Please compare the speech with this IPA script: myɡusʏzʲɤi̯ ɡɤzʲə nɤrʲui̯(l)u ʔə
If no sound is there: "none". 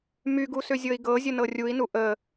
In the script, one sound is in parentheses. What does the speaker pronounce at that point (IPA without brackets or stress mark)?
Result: n